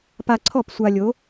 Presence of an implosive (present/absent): absent